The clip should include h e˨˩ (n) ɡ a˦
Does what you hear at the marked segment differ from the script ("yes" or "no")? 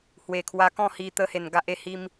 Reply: no